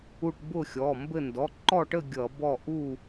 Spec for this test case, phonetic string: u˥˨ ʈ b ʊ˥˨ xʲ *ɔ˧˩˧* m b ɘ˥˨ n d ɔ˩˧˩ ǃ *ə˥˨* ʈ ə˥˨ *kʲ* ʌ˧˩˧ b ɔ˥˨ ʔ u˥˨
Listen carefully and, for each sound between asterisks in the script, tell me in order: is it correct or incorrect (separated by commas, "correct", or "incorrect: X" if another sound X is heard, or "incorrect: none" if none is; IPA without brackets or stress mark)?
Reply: incorrect: ɔ˩˧˩, incorrect: ɔ˥˨, incorrect: ɡʲ